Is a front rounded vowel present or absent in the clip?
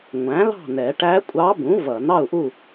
absent